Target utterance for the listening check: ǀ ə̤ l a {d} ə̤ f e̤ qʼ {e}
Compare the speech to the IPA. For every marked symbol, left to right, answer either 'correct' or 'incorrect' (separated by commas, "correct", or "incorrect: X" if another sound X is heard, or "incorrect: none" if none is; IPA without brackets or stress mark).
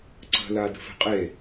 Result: correct, correct